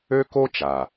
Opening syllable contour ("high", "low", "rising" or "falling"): high